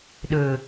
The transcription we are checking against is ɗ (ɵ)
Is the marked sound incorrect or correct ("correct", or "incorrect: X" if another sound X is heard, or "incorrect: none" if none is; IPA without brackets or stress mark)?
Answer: correct